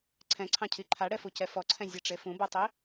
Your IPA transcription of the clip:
ǀʰ ɛ̃ ǀʰ ɑ̃ cʰ i ǃʰ a ɽ ɛ f u c ɛ f ɔ ǀʰ ɛ̃ zʲ ɛ ʈ͡ʂ e f ũ b ɔ tˤ i

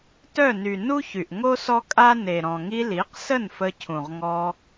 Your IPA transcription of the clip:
t œ˦˨ n y˨ n u˦ ç y˨ ʔ ŋ o˦ s ɔ˦ kʼ a˦ n e˨ ɾ ɔ̃˨ ŋ i˧ l i˨˦ q s ə˦˨ n f ə˧ cʰ ũ˨ ʁ ŋ ɔ˧

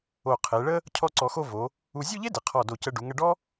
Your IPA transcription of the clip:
o˧˩ qʰ e˩˧ ɭ ə˥ | cʰ ɔ˥˧ ǀ ɔ˧ x o˥˧ v o˩˧ | u˧ zʲ u˥˧ ʎ e˥ d ɪ˩˧ qʰ ɔ˧˩ d o˧˩ c ə˧ ɖ u˩˧ ŋ ə˧ ɖ ɔ˥

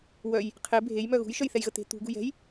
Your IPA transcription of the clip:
w œ j | qʰ e bʱ e j m œ ɣ ṳ j ʃ œ j θ ɛ j ɣ ə t̪ e̤ t̪ ṳ ɡ ṳ j ɛ̤ j

